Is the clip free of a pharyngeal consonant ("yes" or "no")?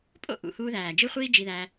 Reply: yes